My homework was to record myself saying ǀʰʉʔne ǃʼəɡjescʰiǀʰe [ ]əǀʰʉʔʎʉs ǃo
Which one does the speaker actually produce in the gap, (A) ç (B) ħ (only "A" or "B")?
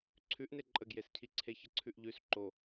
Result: A